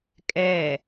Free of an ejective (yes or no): no